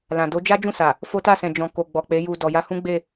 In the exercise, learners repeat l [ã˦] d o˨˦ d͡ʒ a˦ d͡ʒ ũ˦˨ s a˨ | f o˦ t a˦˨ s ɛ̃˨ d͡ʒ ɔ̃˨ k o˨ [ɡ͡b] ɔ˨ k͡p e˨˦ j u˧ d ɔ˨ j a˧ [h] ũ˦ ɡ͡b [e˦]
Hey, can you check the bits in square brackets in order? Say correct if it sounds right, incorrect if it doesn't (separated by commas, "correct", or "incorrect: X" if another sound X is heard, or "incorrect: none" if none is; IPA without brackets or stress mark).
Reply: incorrect: ã˨, correct, correct, incorrect: e˦˨